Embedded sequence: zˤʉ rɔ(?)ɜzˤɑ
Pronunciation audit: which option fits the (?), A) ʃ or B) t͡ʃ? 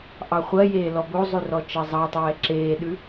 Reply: B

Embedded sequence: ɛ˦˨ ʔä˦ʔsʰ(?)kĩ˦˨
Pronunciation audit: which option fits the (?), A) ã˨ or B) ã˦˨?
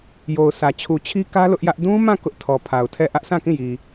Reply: B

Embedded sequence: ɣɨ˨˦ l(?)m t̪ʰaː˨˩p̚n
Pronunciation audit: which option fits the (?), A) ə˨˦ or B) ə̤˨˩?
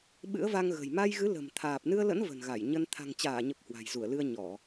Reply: B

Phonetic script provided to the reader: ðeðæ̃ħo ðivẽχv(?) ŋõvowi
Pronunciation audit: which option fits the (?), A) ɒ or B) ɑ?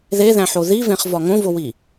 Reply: A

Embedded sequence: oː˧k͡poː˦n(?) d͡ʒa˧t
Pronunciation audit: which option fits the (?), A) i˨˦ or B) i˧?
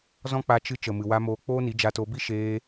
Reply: A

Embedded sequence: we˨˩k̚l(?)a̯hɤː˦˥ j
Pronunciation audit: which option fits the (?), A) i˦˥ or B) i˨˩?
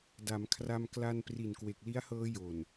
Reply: A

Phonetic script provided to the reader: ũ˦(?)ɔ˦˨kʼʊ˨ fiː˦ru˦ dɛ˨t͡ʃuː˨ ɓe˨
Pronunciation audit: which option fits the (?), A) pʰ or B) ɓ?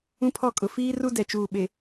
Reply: A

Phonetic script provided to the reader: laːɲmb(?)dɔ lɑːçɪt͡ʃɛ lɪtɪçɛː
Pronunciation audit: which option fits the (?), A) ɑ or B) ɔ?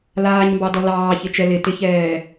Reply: A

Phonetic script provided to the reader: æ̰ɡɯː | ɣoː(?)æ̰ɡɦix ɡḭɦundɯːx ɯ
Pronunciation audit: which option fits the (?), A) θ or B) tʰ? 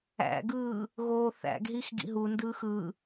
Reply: A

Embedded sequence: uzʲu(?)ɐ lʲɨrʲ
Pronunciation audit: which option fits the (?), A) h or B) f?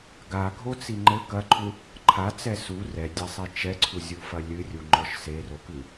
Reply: B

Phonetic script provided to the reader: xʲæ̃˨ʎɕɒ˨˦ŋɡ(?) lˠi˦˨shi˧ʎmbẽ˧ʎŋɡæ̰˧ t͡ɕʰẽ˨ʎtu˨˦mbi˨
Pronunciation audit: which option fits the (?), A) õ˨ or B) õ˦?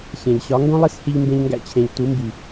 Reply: B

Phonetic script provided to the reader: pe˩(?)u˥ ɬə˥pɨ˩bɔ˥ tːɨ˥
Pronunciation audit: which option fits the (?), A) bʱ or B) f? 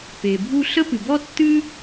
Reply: A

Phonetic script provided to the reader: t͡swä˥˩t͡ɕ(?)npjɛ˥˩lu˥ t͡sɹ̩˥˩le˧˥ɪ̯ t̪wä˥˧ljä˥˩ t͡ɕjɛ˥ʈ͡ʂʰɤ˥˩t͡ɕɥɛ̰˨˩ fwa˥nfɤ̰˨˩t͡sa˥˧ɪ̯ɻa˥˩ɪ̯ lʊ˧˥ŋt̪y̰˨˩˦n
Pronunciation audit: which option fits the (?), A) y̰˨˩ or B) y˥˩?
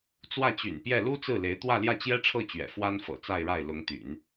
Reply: A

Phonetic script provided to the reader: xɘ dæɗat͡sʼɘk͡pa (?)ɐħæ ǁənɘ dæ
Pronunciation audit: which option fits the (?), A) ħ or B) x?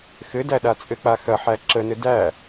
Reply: B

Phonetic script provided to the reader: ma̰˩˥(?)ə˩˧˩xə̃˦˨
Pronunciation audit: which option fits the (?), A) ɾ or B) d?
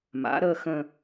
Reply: A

